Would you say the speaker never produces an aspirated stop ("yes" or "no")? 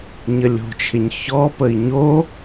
no